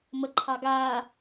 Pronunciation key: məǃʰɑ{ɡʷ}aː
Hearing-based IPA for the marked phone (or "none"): ɡ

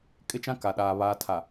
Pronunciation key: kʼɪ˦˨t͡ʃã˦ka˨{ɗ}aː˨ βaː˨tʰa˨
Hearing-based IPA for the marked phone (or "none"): ɗ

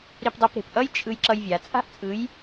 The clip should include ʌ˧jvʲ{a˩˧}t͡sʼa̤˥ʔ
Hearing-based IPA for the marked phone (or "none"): a˩˧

